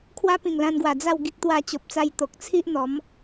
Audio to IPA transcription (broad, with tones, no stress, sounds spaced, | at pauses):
kʰ w a˦ p ĩ˨˩ ŋ l ã˧ n ɡ w a˨˩ d͡z a˥˧ w ɡ i˦ k̚ t̪ w a˧ t͡ɕ o˨ p̚ t͡s a˧ j t̪ o˨ k̚ t͡sʰ i˦ ʔ n̪ ɔ˨˦ m